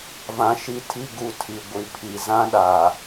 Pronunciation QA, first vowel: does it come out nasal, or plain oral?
nasal